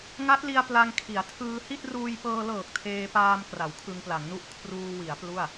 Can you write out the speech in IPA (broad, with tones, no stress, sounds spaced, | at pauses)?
ŋ a˦˥ t̚ l i˧ a̯ p l a˧ ŋ kʰ i˩˦ a̯ tʰ ɯː˧ h i˥˩ t̚ r uː˧ j p ɤː˧ l ɤː˨˩ k̚ tʰ eː˧ p aː˧ m k r a˩˦ w kʰ ɯ˧ ŋ p l a˩˦ ŋ n u˥˩ ʔ kʰ r uː˧ w i˩˦ a̯ p l u˥˩ a̯